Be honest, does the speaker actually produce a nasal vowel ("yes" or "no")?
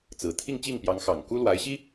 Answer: no